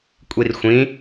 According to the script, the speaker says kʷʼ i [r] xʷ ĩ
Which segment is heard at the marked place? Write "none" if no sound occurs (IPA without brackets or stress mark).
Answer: r